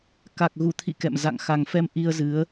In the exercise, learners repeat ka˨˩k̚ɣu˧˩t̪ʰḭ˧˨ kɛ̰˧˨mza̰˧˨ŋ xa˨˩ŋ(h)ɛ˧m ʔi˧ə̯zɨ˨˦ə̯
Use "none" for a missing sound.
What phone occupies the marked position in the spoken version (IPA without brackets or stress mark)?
f